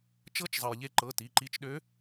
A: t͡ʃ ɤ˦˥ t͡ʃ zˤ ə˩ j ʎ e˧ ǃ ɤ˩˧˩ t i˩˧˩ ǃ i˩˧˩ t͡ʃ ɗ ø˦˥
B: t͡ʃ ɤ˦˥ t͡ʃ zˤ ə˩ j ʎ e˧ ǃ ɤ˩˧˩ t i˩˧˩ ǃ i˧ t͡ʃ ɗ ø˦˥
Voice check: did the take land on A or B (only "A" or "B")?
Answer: B